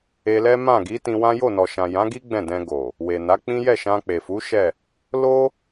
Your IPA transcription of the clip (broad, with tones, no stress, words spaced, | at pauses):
e˧lɛ˦ mã˦˨ɡi˨˦tĩ˧ wã˦ jo˦˨nɔ˨ʃã˨ jã˨˦ɡi˦ ɡ͡bɛ̃˦˨dɛ̃˧ɡo˨ | we˨na˨˦ k͡pĩ˦ jɛ˦˨ʃã˧k͡pe˨fu˨˦ ʃɛ˦˨ | lo˦